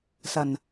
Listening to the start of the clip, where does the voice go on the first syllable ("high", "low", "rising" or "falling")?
low